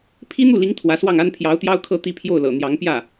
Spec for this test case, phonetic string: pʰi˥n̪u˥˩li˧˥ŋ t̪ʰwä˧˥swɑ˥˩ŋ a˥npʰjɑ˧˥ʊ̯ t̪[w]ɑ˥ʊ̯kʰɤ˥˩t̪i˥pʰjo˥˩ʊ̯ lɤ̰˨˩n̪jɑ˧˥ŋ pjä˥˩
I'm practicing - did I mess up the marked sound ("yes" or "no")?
yes